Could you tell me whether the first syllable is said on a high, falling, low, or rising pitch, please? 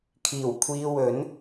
low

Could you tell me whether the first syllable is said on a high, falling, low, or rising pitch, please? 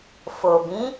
low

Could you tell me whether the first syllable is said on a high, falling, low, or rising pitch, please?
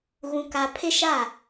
high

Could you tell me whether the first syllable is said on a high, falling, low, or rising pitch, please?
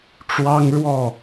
high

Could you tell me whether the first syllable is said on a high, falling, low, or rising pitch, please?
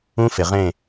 high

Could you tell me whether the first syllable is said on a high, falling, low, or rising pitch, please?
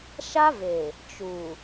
high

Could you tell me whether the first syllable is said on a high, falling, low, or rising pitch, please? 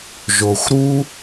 low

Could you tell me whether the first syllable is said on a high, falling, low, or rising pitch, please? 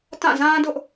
falling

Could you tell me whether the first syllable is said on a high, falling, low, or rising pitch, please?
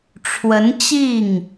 rising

